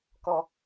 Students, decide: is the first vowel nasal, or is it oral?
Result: oral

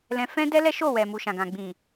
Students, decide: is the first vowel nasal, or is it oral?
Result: nasal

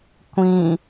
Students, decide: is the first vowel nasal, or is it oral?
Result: nasal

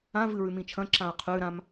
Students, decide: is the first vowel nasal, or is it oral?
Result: nasal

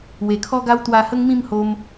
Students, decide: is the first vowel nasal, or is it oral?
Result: oral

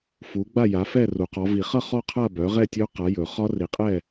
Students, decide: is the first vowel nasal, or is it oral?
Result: oral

